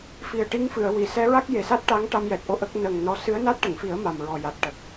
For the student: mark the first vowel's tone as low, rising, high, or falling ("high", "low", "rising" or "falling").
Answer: low